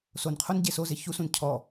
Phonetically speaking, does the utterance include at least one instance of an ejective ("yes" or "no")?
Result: no